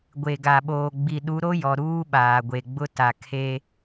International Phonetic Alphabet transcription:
ɡʷ e˨ ɡ a˨ ɓ oː˨ ɡ͡b i˨ ɗ u˨˦ ɾ o˦ j ɔ˨ ɾ uː˦ ɓ aː˨ ɡʷ e˨ ɡ͡b ʊ˦ t a˨ kʰ e˦

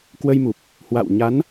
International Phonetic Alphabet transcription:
k w ə˧ j m u˨˩ p̚ | h w a̰˧˨ w ɲ a˨˦ n

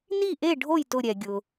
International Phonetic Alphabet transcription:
n i˥˩ ʔ e˥˩ ɖʱ o˥˩ j t ʊ˧˩ ɾʲ ɛ˩ ɡʲ ʊ˩

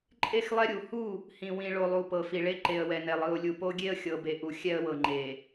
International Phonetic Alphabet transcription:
ǃʼ e˦˨ x lˠ ɛ˦ ɾʲ u˨˦ h u˦˨ | h ĩ˨ w ĩ˨ ɭ o˨ lˠ u˨ p ɤ˨ f i˨ ɭ e˦ ǃ e˨ ə̯ w ɛ˨ n ɛ˨ lˠ ɯ˨ ʊ̯ lʲ u˨ p o˦ ɡʲ e˦ ə̯ xʲ ɤ˨ b e˨ ʔ u˨ xʲ ɛ˦ ə̯ w ɤ˨ ŋ͡ǃ e˨

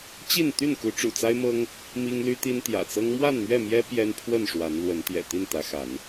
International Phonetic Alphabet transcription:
t͡ɕ i˥˨ n t̪ y˥˨ n k u˨˦ ʈ͡ʂ ṵ˨˩ t͡s a˦ ɪ̯ m ɤ˦ ŋ | m i˦ ŋ l y˦ t̪ i˦ n t̪ j ä̰˨˩ t͡s ɤ˦ ŋ m w a˥˨ n m ɥ ɛ˥˨ m j ɛ˦ p j ɛ˦ n pʰ w ə˥˨ n ʂ w a˨˦ n l w ə˨˦ n t̪ j ɛ̰˨˩ t̪ i˥˨ n t̪ ä˨˦ x a˨˦ n

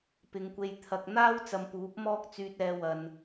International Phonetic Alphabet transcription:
p ɪ˨˧ ŋ kʷ e˧ j t̪ʰ ɐ˧ k̚ n̪ aː˥ w t͡s ɐ˧ m p uː˨˥ p̚ m ɔː˥ k̚ t͡s yː˧ t̚ ɛː˧ w ɐ˨ n

